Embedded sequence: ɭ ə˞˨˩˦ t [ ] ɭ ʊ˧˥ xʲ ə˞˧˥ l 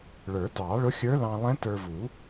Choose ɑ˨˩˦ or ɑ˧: ɑ˨˩˦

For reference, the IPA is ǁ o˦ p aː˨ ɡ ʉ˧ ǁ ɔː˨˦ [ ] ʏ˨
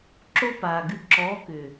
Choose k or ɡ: k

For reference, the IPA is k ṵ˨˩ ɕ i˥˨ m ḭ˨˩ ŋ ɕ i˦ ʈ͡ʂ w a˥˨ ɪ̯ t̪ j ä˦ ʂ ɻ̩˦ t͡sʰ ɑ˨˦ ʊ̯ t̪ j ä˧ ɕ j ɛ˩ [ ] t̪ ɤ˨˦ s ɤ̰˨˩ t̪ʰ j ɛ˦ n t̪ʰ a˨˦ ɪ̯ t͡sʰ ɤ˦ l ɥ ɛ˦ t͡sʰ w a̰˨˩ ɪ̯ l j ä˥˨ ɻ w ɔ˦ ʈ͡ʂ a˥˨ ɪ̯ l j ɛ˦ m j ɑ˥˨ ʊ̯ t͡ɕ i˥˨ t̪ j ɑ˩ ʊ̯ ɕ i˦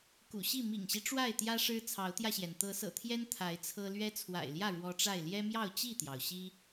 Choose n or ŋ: n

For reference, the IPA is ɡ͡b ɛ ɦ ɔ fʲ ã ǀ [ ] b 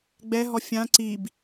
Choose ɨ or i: i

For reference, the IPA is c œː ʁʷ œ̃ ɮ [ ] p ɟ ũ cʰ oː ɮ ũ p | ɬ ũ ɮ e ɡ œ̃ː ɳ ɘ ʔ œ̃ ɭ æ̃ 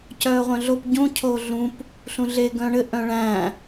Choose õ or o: o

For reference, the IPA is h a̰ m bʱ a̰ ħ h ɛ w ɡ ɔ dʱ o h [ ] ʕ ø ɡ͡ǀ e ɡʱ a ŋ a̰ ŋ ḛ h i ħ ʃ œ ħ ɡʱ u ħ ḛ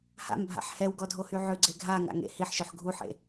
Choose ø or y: y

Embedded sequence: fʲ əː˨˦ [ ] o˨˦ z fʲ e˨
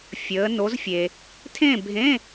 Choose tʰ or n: n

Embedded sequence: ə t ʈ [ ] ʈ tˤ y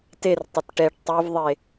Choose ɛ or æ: ɛ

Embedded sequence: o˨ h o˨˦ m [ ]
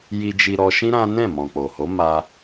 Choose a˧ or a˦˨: a˧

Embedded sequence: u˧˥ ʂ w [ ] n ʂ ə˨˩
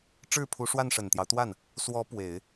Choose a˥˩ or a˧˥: a˥˩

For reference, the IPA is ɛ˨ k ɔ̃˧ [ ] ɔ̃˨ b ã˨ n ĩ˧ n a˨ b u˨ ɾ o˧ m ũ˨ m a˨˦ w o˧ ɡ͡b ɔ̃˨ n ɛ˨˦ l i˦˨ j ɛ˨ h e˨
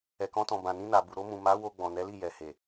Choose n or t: t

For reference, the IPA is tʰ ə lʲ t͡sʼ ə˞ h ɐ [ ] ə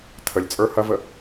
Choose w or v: v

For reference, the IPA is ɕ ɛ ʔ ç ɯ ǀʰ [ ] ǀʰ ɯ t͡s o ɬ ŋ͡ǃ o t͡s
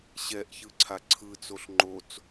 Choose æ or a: a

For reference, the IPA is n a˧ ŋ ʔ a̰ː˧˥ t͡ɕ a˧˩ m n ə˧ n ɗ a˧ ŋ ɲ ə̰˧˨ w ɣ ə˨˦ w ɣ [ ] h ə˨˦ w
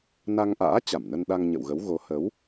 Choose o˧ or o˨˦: o˨˦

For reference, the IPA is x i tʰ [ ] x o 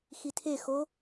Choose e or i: e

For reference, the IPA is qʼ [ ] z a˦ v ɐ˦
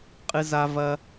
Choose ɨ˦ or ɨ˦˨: ɨ˦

